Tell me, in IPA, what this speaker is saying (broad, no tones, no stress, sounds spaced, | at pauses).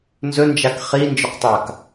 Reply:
n z ɵ n d͡ʒ a k χ i n d͡ʒ ɵ q tˤ a k